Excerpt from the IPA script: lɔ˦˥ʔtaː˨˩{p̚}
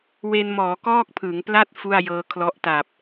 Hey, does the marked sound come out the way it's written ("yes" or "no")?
yes